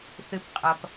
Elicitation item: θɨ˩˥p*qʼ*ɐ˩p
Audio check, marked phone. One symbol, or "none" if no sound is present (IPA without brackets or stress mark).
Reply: qʼ